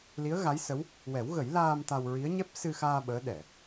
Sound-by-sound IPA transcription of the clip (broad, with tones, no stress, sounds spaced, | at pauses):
l i˧˥ ə̯ ɣ a˧˥ j s ə˧˥ w | w ɛ˨˩˦ w ɣ ə˨˩˦ j l aː˧ m t̪ a˧ w ɹ i˧˥ ə̯ ɲ ɛ˦˥ p̚ s ɨ˧ x aː˧ ɓ əː˧˥ ɗ ɛ˨˩˨